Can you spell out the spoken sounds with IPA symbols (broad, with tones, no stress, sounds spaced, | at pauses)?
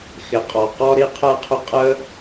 x ɪ˨ qʼ ɔ˨ q ɔ˧ ɾ i˧ qʰ ɛ˧ qʰ ʊ˧ qʼ əː˦